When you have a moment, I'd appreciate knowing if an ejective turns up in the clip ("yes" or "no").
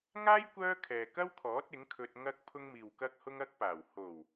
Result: no